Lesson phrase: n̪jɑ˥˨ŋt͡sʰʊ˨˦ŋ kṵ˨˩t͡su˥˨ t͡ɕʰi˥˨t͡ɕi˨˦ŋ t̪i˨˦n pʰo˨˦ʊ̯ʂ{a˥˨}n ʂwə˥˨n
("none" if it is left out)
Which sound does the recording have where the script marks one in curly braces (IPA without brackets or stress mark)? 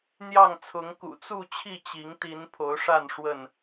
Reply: a˥˨